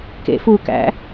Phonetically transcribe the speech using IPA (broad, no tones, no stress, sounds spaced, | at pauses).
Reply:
k ḛ f u k æ̰